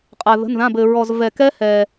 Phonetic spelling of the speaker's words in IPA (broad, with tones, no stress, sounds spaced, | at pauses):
qʼ a˧ ð ə̤˧˥˧ n ð ã˧˥˧ b ɘ˧ ɹ ɔ˧ z v ɛ˧ k ɛ˦˥ h ɛ˧